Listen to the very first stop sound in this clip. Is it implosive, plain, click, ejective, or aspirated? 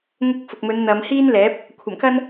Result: plain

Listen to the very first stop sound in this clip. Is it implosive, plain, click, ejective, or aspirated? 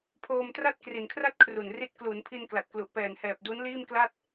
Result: aspirated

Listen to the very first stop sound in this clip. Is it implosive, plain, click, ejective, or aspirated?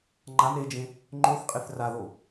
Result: click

